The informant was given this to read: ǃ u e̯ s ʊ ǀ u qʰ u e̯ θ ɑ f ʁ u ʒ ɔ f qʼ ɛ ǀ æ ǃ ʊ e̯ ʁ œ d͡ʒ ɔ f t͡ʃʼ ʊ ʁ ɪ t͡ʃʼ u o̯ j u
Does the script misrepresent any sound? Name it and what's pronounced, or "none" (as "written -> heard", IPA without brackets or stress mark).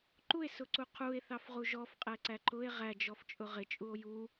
œ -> æ